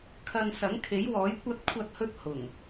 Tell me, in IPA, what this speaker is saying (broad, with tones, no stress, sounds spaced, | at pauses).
kʰ ɐ˧ n s ɐ˨˥ ŋ kʰ e˨˥ j w ɔː˨˥ j kʷ ɐ˥ t̚ kʷʰ ɐ˧ t̚ h ɵ˧ t̚ h ʊ˨˩ ŋ